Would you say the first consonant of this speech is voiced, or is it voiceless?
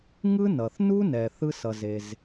voiced